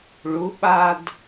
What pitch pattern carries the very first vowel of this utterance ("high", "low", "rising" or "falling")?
rising